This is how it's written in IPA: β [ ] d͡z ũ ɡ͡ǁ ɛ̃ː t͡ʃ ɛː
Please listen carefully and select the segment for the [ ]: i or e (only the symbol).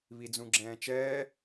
i